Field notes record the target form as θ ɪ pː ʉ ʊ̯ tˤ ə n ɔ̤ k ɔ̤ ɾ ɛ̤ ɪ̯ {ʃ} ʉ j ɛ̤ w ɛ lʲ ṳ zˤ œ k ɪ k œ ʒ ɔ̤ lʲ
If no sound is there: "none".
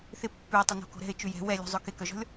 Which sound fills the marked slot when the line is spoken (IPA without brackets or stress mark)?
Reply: t͡ʃ